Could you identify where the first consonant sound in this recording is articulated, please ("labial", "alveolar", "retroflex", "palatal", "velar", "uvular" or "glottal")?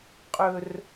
uvular